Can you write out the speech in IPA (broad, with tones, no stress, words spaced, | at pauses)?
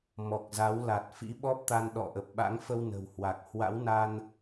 mɔ˨˩k̚za˨˦w la˨˩t̚ fḭ˧˥ɓɔ˦˥p̚t̪a˧n ɗɔ̰˧˨ʔə˨˩p̚ɓa̰˧˥ŋfə˧w nə̤˨˩whwa˨˩k̚ hwa̰˧˥wna˧n